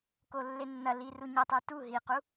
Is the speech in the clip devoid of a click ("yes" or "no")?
yes